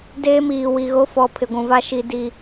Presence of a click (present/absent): absent